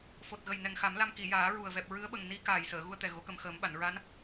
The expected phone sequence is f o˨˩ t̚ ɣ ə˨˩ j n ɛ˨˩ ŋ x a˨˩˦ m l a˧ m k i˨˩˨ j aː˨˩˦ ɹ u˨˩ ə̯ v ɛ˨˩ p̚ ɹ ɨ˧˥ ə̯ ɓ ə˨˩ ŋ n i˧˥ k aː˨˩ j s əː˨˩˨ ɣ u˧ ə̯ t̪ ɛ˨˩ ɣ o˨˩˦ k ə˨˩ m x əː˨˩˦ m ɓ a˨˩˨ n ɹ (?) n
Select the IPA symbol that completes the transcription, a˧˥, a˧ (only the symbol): a˧˥